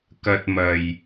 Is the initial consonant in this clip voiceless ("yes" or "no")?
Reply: yes